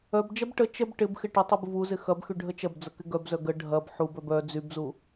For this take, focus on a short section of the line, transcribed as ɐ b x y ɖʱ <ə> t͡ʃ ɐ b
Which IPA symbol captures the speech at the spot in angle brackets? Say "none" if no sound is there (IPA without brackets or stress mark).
ə